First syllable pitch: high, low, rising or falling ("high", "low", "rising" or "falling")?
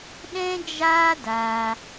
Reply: high